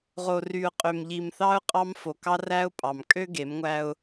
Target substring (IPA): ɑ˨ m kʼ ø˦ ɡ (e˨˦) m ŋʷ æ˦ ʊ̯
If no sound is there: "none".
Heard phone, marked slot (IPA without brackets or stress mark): e˨˦